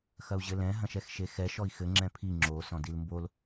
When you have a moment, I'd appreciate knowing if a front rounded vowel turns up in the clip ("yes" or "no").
no